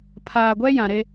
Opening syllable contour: low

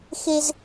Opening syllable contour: high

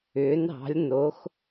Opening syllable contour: rising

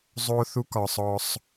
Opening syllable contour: high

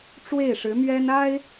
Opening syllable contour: falling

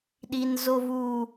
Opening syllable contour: low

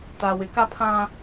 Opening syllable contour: low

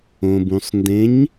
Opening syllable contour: low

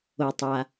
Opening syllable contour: low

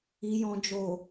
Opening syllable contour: low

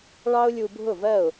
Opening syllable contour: high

